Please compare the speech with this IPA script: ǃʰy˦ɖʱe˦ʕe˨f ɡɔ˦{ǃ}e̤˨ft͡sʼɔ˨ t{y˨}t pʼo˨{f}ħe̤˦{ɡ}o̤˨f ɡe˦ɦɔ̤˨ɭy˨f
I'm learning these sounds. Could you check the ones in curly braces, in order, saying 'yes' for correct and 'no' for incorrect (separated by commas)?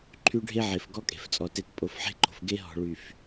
no, no, yes, no